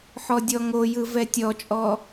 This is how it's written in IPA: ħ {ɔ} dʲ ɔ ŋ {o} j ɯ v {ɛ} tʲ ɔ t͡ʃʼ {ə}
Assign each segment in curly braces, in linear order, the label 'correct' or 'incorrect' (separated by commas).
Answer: correct, correct, correct, incorrect